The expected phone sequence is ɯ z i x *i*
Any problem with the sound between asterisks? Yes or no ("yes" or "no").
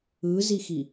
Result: no